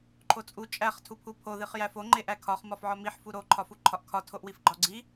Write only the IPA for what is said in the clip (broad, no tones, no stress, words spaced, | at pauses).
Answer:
ǃʰot͡sʼu t͡ʃʼæχ tʰupʰupʰo ðiχjæfo ŋ͡ǃeʔækʰɒχ mɒfʕɒmiħ fuɾo ǃʰɒfuǃʰɒʔkʰɒ tʰoʔwifɡ͡ǃɒɡ͡ǀi